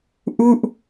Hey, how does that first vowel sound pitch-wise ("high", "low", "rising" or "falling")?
falling